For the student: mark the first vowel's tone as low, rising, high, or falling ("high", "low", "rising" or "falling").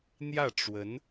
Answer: falling